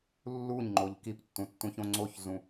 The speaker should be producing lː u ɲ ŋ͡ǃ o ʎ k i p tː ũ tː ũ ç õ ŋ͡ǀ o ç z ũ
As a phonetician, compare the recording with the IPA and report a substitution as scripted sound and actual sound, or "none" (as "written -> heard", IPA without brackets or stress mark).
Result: none